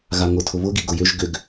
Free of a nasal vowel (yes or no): yes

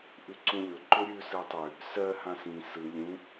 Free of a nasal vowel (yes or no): no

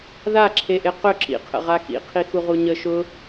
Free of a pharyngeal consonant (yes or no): yes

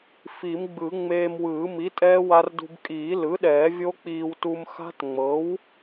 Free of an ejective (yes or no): no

